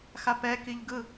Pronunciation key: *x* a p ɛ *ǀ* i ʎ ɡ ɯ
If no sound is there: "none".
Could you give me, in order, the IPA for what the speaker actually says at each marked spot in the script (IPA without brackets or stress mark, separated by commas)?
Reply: x, k